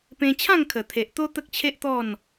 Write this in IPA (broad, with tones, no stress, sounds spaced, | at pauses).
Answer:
p ẽ˧ t͡ɕʰ ã˥˧ ŋ kʰ ə˨˩ t̪ʰ e˨ ʔ t̪ o˦ t̪ ə˦ k̚ t͡ɕʰ e˦ ʔ t̪ ɔ˥˧ n